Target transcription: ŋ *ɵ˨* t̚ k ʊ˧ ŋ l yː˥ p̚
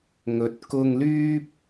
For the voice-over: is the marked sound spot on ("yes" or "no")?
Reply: yes